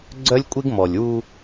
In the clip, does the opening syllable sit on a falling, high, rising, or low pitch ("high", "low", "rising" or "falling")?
high